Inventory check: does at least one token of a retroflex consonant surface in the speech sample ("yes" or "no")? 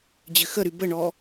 yes